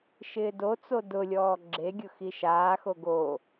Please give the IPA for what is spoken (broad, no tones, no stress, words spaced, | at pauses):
ʃɪːdot͡so dʊlʲɔː ɡ͡ǁeɡʲʊ xiʃaːxo ɡoː